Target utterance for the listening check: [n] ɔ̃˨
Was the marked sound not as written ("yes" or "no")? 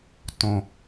yes